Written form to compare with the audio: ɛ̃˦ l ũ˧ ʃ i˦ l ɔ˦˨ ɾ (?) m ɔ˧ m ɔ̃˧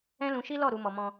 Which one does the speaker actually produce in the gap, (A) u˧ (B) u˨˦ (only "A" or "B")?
B